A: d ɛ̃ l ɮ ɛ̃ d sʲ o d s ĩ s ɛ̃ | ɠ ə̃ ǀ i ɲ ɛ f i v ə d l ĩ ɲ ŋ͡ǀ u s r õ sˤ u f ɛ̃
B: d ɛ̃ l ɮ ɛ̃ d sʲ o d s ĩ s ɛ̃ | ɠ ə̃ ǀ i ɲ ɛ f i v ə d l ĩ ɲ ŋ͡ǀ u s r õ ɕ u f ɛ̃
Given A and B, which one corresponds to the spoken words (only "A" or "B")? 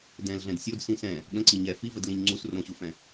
B